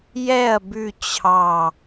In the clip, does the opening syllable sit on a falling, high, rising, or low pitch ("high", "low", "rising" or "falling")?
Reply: falling